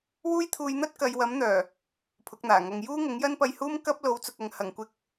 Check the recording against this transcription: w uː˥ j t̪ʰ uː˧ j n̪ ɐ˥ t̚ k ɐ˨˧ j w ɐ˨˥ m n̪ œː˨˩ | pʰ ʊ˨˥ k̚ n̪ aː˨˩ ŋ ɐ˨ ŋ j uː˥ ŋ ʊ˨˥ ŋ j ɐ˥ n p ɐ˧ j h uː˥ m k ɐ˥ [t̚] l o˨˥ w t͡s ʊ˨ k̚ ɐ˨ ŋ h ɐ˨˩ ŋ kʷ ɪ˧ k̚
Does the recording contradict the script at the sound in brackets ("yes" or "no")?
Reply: yes